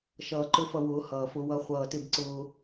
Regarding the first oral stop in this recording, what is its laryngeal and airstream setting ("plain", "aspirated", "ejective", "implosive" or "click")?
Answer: click